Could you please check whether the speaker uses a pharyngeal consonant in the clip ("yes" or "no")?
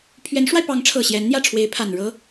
no